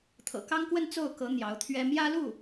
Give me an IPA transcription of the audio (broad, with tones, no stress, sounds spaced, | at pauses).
t̪ʰ ɤ̰˨˩ k ɑ˥ ŋ k w ə˥˧ n t͡s o˥˩ ʊ̯ k ɤ˧˥ n̪ j ɑ˧˥ ʊ̯ t̪ʰ ɥ ɛ˥ m j ä˥ l u˥˩